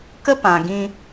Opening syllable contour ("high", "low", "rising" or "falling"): high